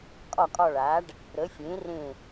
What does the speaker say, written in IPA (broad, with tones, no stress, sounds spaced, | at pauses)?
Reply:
kʼ ɒ˦˨ kʼ ɒ˦˨ ɭ aː˨˥ ɖ | ɾ ə˨˥ fʲ ẽ˨˥ r ẽ˦˨